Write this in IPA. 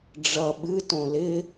ɖ͡ʐ ʌ ɓ ɨ t õ l ɪ

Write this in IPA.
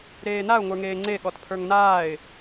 ɾ eː n a ʊ̯ ŋʷ ə˞ ŋ eː ŋ͡ǀ e ɠ ɔ t pʰ ə˞ ŋ n aː ɪ̯

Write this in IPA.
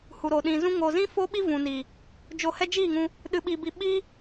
h u˨ ɾ o˨ ɗ ĩ˨ z ũ˧ ŋ o˨ z ĩ˦ f o˦ ɓ i˦ v ũ˨ n i˨ | d͡ʒ o˧ h ɛ˦ d͡ʒ iː˦˨ ŋ ũ˧ | ɗ ɨ˧ ɓ i˧ b i˧ ɓ iː˦

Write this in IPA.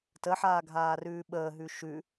t ə ħ aː ɡʱ aː r ʉː ɓ əː ɦ ʉ ʃ ʉ

